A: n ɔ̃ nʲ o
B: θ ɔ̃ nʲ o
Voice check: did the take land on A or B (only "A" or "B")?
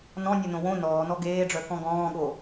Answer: A